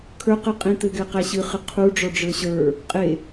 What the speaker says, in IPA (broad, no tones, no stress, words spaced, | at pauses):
kʰə˞qɨ qʼĩt̪ɘɡɛ qæɕɨχɨ qʰu ɖ͡ʐɔɖ͡ʐə˞ɕə˞ | qʼe